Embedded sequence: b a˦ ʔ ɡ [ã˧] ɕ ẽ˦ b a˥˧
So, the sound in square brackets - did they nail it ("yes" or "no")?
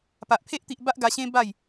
no